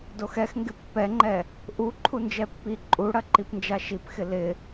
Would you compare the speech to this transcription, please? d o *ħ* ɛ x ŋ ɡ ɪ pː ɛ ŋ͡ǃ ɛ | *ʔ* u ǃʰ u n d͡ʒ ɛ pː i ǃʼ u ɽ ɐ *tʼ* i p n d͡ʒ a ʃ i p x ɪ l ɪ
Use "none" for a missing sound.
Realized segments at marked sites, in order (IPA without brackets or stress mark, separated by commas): x, ʔ, ǃ